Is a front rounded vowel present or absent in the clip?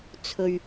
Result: absent